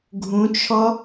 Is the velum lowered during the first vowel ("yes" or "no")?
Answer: yes